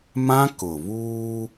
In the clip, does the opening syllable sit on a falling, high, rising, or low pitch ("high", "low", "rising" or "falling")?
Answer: high